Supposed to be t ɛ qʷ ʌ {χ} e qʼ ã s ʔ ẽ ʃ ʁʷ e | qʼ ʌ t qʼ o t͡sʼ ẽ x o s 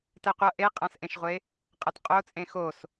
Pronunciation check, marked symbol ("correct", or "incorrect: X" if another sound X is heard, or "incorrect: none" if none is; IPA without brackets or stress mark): incorrect: ʔ